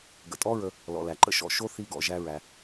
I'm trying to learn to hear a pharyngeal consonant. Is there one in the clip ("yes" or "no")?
no